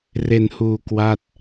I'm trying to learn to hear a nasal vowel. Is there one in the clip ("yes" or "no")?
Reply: no